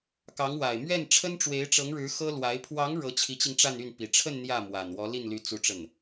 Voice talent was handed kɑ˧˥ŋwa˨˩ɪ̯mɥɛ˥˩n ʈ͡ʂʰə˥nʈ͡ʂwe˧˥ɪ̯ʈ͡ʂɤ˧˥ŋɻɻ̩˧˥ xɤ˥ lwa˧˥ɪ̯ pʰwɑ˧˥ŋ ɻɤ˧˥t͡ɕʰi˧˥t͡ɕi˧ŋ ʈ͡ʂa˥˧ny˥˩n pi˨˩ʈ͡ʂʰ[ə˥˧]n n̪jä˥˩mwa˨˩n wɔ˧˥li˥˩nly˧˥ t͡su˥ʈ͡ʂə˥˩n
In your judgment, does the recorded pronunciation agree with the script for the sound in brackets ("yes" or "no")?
yes